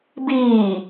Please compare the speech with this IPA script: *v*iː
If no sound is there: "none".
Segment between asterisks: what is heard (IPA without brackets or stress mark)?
b